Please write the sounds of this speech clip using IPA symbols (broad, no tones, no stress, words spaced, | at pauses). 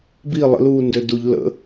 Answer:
bi lˠə̰luːndø duʎ lə̰